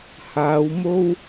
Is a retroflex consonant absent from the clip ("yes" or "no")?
yes